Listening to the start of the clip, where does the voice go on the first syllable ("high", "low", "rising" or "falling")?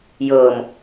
low